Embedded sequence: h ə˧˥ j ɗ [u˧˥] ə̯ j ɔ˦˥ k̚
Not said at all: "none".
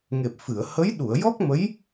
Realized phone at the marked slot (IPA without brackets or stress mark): u˨˩˨